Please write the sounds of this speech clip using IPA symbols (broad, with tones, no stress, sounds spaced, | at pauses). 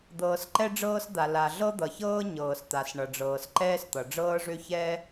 d̪ ɤː˩ s ǃ ɛ˥ ɖ͡ʐ ɤː˥ s d̪ a˩ l a˩ ɮ ɤ˥ d̪ ʌ˩ ç ɤː˥ ɲ ɤː˩ s t̪ a˩ s ɳ ʌ˩ ɖ͡ʐ ɤː˩ s ǃ ɛː˥ s t̪ ʌ˩ ɖ͡ʐ ɤː˥ ʐ ø˥ ç ɛː˥